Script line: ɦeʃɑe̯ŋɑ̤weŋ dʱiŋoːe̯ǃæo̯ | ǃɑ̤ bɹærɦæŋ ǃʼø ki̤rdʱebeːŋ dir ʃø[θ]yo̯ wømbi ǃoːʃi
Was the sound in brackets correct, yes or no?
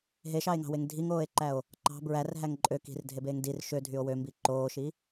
no